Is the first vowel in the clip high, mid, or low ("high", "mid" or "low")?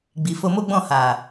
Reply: high